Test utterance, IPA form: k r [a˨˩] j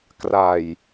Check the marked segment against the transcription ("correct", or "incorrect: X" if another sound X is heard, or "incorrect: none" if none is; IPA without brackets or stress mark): correct